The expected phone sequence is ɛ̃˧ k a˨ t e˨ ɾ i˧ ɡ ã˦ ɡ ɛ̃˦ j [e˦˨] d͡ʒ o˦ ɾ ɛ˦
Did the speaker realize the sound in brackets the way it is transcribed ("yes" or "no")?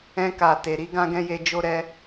no